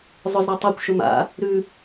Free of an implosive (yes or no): yes